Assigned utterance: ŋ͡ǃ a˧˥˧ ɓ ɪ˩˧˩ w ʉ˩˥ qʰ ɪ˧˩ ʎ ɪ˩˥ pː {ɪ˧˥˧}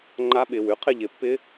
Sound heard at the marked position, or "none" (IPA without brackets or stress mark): ɪ˧˥˧